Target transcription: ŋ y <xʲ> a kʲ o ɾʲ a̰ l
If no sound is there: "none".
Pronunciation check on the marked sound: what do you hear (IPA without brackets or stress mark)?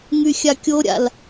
xʲ